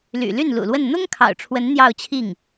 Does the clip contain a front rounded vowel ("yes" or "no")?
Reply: yes